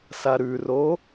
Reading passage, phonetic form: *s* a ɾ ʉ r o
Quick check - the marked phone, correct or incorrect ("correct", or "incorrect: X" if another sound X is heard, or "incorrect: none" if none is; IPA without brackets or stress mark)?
correct